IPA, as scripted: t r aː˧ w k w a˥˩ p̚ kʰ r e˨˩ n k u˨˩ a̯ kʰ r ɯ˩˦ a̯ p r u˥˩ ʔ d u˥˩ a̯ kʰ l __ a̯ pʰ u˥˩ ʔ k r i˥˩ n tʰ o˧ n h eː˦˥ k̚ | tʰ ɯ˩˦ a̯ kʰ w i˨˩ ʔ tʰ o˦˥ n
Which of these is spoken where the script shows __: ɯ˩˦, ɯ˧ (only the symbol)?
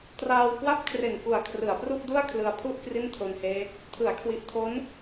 ɯ˧